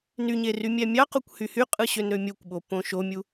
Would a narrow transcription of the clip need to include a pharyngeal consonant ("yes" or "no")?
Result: no